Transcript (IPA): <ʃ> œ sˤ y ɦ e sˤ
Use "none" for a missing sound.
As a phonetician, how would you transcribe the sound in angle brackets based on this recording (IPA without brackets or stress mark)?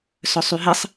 s